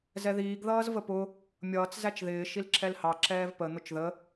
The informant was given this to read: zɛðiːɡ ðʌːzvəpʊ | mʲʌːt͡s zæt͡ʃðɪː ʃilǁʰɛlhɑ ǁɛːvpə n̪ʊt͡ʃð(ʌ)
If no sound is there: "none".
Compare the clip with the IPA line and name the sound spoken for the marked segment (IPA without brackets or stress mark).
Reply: ə